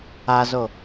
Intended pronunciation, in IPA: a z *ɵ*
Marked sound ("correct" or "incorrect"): incorrect